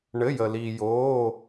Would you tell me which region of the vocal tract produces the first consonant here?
retroflex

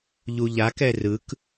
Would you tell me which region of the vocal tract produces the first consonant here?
palate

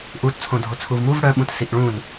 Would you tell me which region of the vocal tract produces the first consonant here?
throat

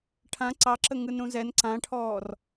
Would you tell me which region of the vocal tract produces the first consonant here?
retroflex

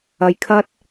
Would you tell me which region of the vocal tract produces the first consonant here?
palate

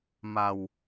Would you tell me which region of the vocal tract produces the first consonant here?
lips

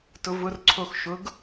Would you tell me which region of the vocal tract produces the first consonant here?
tongue tip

